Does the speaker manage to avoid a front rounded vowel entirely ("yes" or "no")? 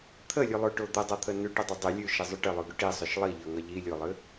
yes